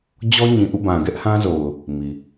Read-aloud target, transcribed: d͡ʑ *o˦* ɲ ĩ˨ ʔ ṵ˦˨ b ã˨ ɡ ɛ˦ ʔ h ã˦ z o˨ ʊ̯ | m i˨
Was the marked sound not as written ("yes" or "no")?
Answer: yes